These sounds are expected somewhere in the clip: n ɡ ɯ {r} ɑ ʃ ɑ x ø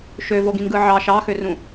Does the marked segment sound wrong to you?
yes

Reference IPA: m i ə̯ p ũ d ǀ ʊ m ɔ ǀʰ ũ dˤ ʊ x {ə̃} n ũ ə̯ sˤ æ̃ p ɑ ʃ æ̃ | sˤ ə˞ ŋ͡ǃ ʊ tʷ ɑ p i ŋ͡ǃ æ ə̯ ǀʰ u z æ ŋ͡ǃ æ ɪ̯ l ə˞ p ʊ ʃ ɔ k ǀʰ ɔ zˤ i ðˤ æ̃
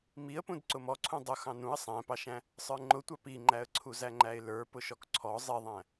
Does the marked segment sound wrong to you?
yes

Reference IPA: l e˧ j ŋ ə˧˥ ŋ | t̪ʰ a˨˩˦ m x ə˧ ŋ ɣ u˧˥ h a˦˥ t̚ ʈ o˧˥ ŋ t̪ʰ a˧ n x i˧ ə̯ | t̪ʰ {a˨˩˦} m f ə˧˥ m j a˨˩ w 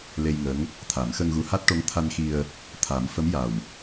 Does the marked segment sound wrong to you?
no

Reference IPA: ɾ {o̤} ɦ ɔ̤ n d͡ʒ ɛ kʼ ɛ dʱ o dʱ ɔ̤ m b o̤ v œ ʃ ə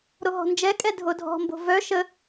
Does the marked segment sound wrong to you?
yes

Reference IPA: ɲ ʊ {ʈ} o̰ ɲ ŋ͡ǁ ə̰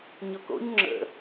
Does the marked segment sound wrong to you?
yes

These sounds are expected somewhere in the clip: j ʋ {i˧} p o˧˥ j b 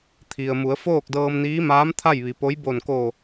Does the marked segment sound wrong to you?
yes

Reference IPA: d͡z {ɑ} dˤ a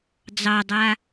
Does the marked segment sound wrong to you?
no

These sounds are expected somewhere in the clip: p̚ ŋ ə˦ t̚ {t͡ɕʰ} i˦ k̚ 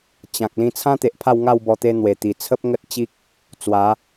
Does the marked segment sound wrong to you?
yes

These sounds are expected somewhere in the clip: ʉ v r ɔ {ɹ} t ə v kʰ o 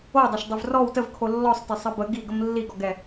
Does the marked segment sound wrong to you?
yes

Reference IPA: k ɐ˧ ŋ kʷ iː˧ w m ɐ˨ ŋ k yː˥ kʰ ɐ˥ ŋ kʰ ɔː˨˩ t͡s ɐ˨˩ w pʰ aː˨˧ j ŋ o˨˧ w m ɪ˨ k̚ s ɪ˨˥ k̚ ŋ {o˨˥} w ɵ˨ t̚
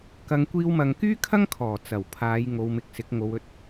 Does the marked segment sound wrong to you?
yes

